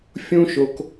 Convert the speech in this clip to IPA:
fʲ ũ˦ ʃ o˧ k

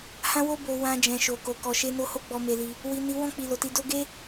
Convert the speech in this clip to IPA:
h ã˦ w o˦ b o˧ w ã˧ d͡ʒ ɛ̃˨ ʃ o˨ k o˨ k ɔ˨ ʃ e˧ n o˧ h o˦ ɡ͡b ɔ˧ m e˧ l i˧ | w i˨ n i˨˦ w ɔ̃˦˨ k͡p i˨ l o˨ t i˧ d o˦ ɡ e˦

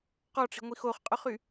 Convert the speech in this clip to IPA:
q ɔ ʈ͡ʂ i̤ ŋʷ i x o χ qʼ œ χ y

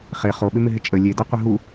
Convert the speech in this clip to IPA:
χ e χ o ɓ ɪ m ɪ ɦ ɪ t͡ʃʼ ə lʲ e d a qʷ ɪ ɦ u

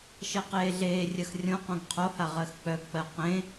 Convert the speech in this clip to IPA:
ʃ ɜ q eː ɮ eː rʲ ɜ x rʲ õ q õ ɡ qʰ o h a ʁ ɜ x k͡p œ ɡ k͡p ɜ q ẽ

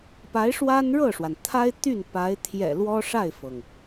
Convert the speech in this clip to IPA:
p a˧˥ ɪ̯ ʂ w a˥ n ɻ ɤ˥˩ ʂ w a˩ n t̪ʰ a˥ ɪ̯ t̪ y˥˩ n p a˧˥ ɪ̯ t̪ʰ j ɛ̰˨˩ l w ɔ˥ ʂ a˥˩ ɪ̯ f ɤ˩ ŋ

